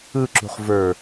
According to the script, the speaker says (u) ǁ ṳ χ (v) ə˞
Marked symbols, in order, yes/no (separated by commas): no, yes